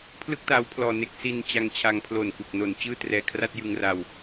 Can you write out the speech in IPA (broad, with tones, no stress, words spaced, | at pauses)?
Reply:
pʰlɯ˥˩k̚taː˦˥wpʰlɔː˧ ne˦˥k̚ si˧n t͡ɕa˧ŋt͡ɕʰa˧ŋ pʰlo˨˩nku˨˩k̚no˨˩n t͡ɕɯː˥˩trɛː˧ kʰra˥˩t̚jɯ˧ŋra˧w